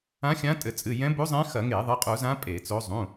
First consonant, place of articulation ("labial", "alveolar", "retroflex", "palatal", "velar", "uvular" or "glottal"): velar